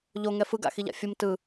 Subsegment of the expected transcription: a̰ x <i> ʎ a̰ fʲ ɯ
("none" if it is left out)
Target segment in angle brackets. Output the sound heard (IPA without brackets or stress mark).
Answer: i